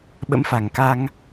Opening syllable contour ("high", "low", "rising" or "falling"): rising